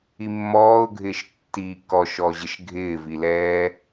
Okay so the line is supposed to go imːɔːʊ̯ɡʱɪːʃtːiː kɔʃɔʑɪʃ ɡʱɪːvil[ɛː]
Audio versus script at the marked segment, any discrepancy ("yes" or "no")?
no